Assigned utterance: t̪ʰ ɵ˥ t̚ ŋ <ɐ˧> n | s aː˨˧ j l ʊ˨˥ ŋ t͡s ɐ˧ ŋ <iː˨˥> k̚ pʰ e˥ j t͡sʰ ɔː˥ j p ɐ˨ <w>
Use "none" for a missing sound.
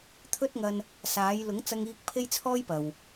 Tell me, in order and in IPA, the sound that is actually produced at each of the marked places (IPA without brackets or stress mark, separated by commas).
ɐ˧, iː˧, w